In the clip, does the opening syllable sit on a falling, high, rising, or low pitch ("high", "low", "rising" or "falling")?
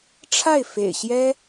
falling